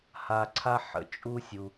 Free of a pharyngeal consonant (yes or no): no